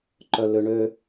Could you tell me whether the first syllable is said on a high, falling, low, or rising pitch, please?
low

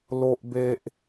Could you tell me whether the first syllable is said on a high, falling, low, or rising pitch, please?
low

